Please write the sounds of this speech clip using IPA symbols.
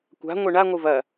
kʷ a̤ ŋʷ e ɳ a ŋʷ ɨ v ɐ

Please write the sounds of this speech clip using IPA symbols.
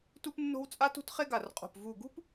t u˥ p nː o̤˥ w t͡sʼ a˥ t ṳ˥ t χ e˥ ɡ a˧˩ r qʼ o̤˧˩ p v u˧˩ ɡ ṳ˥ p

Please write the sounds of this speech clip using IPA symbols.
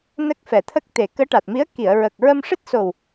n ə˦˥ k̚ f ɛ˨˩ t̪ʰ ə˦˥ k̚ t̪ e˨˩ k əː˧˥ ʈ a˨˩ t̚ m i˧˥ ə̯ k i˨˩˨ ə̯ ɹ ə˨˩ k̚ ɹ ə˧ m ʂ ɨ˦˥ t̚ s o˨˩ w

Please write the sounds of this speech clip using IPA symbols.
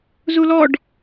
z u l ɔ ɖ

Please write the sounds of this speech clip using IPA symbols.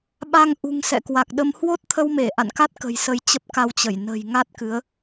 ɓ a˧ ŋ ʔ ṳ˨˩ ŋ s ɛ̰˧˨ k w a˨˩ k̚ ɗ ə˧ m h w o˦˥ t̚ t̪ʰ ə˧ w m e˧˩ ʔ a̰˧˨ n k a˦˥ t̚ k ə̤˨˩ j s ə˨˦ j t͡ɕ ə˦˥ p̚ k a˧ w t͡ɕ ə˧˩ j n ə̤˨˩ j ŋ a˦˥ t̚ k ɨ˨˦ ə̯

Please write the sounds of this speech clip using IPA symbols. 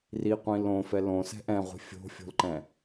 r i qʷ ĩ l õ f ɛ l õ s ɛ̤ ʔ ɛ̃ ʁʷ i̤ fʲ o̤ fʲ o̤ l ǃ ɛ̃

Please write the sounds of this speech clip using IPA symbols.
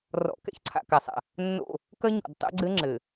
r ɔ̰˨ k ɛ̰˦ ç ǀʰ a̰˨ k a˨ sˤ a̰˨ | nː o̰˦˨ | k ɐ˦ ɲ ɔ̰˨ d tˤ ɛ̰˦ ɡ͡ǀ ɘ˦ ŋ͡ǁ ɘ˨

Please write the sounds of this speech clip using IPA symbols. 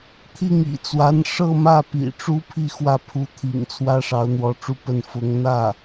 t̪ʰ i˥˩ ŋ ḭ˨˩ t͡s w a˧˥ n ʂ ɤ˥˧ m ä˥˩ p ḭ˨˩ ʈ͡ʂ u˥ pʰ i˥˧ x w ä˥˩ pʰ u˧˥ t̪ʰ ḭ˨˩ ŋ t͡sʰ w ä˥ ʂ ɑ˧˥ ʊ̯ n̪ w ɔ˧˥ ʈ͡ʂ u˥ p ə˥˩ n f ʊ˧˥ ŋ n̪ ä˥˩

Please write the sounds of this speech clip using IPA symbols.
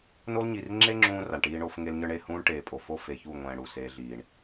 n o˦ l ɲ i˨ r ŋ͡ǁ e˦ ŋ͡ǁ ũː˧ r a˨ ɳ ʈ iː˦ ɳ o˦ f ŋ e˧ l ɲ ə˞˧ ɳ e˦˨ h ũː˦ ɳ ʈ eː˨ pʼ o˨ f o˦ f e˨ ç u˦˨ ŋʷ ɛ̃ː˨ ɽ u˨ s eː˧ ɮ iː˨ ɳ

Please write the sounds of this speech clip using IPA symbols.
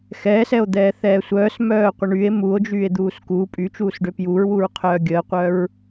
x ɛː s ɛ o̯ d̪ ɛː θ ɛː sʷ œː s m œː qʷ ə ɳ y e̯ m u o̯ d͡ʒ yː e̯ d̪ uː s k uː pʼ y t͡ʃ uː s ɖ ø p j u ɹ w u ɹ qʰ œː ɡʲ əː qʷ œ ɹ

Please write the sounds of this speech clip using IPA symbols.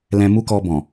l ɛ̃˧ m u˦ k ɔ˧ b ɔ̃˨

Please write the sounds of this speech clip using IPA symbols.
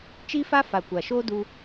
t͡ʃ i˦ f a˦ f a˨ kʷ a˨ ʃ oː˦ d u˧

